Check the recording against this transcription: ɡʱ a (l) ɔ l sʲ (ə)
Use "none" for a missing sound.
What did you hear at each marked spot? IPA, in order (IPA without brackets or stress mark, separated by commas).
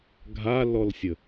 l, ə